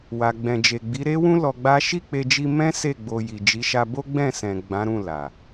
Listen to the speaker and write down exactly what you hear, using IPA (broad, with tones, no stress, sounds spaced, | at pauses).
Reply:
w a˨ ɡ͡b ɛ̃˨ d͡ʒ e˨ ɡ͡b i˨˦ ɾ e˦ w ũ˦ l ɔ˧ ɡ͡b a˦ ʃ i˦˨ k͡p e˧ d͡ʒ i˧ m ɛ̃˦ s e˦˨ ɡ͡b o˧ j i˨ d͡ʒ i˨˦ ʃ a˧ b o˦ ɡ͡b ɛ̃˦˨ s ɛ̃˨ ɡ͡b ã˨˦ ɾ ũ˦˨ l a˨